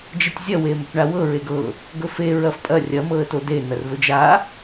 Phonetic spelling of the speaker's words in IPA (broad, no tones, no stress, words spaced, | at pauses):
d͡ʒetʲzʲɐ wemɵpɳawɤ ɹeɡɤ | ɡɵfe ɹɐfpʼɐ rʲɐ mɤə̯tode n̪ɐrvɵd͡ʒa